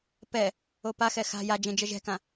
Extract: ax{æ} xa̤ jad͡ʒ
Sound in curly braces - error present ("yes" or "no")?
yes